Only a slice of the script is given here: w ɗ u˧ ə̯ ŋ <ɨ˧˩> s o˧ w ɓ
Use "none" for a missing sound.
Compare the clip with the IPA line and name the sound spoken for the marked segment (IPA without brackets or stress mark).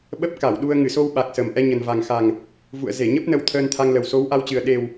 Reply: ɨ˧˩